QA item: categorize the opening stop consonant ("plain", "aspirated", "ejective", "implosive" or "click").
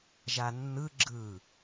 click